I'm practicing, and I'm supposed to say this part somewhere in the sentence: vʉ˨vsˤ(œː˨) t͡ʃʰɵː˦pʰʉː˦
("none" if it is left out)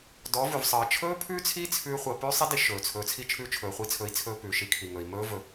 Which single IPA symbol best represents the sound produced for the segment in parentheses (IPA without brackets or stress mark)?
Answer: əː˨